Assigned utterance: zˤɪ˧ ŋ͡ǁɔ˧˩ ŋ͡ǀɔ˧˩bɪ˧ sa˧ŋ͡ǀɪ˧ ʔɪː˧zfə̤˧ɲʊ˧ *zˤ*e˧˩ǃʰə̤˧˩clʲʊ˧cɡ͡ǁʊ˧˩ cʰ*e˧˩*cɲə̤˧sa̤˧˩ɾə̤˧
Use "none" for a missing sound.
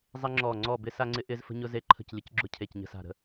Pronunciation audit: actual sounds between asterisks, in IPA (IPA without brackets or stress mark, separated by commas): z, e˧˩